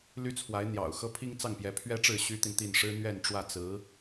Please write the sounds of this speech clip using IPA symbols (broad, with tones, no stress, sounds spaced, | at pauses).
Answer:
l y˥ t͡sʰ w a˧˥ ɪ̯ n̪ j ɑ̰˨˩ ʊ̯ x ɤ˥ pʰ i˥ ŋ t͡s ɑ˥˩ ŋ p j ɛ˧˥ pʰ ɥ ɛ˥ ʈ͡ʂ ɻ̩˥˩ ɕ y˥ t̪ i˨ n t̪ i˥˩ n ʂ ɻ̩˥ n̪ ɥ ɛ˥˧ n ʈ͡ʂ w ä˥˩ t͡s ɹ̩˧˥